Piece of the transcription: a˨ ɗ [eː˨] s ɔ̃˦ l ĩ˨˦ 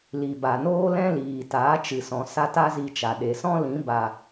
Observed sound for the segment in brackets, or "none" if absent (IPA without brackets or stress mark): e˨